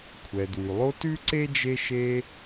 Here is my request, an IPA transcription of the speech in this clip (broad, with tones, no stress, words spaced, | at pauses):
kʷʰɛ˩dwʉ˩lˠo˦ tʉ˥ǀe˥d͡ʒe˦ʃe˦